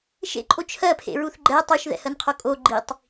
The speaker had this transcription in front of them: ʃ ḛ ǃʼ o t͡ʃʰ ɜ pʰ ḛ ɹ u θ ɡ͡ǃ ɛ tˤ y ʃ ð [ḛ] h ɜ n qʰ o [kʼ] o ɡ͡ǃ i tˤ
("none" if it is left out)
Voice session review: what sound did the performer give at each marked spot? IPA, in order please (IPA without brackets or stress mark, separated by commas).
ɛ̰, kʼ